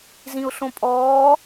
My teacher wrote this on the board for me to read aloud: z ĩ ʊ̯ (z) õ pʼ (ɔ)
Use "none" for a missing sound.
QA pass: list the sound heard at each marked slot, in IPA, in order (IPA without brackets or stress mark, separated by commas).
ɬ, ɔː